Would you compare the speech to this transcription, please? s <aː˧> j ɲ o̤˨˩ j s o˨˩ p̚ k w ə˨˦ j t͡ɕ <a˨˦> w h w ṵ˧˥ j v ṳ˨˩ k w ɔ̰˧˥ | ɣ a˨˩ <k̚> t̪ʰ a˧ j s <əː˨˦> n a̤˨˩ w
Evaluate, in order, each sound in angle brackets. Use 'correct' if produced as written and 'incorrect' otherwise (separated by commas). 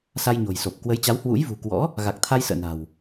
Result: incorrect, correct, correct, incorrect